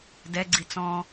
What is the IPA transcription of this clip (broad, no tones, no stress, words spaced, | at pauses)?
dɛɡ͡ǀi t͡sɔ̃